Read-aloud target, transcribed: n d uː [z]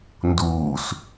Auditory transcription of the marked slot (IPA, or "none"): s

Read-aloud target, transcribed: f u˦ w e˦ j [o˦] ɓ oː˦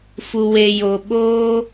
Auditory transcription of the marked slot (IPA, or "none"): o˦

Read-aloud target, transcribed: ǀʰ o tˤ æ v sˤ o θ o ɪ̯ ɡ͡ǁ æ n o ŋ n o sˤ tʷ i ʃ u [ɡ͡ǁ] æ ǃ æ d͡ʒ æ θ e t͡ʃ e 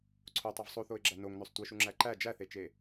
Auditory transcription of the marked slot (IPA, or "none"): ŋ͡ǁ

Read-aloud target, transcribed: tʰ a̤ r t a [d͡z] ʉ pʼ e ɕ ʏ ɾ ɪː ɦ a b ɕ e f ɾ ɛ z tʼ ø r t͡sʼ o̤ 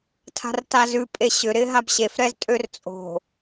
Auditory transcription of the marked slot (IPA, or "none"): z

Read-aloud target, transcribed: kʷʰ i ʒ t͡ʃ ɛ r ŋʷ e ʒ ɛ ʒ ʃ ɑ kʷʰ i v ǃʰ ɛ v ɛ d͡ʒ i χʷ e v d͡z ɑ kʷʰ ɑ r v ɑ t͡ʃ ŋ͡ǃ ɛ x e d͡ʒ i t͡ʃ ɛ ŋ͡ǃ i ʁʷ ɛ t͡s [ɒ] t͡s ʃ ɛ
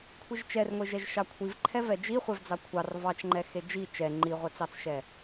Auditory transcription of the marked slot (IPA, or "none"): ɑ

